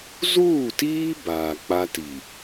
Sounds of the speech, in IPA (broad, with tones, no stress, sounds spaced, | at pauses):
z uː˦˨ t iː˦ b aː˨ k͡p a˦ t i˨